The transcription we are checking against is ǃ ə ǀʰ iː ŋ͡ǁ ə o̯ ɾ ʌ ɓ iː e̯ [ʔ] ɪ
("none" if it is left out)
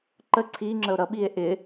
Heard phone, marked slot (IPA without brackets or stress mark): ʔ